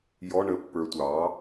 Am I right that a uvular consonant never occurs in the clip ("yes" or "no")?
yes